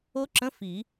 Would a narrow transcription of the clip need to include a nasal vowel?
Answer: yes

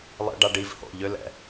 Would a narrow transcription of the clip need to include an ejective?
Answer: no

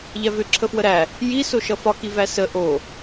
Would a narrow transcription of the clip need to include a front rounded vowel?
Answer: yes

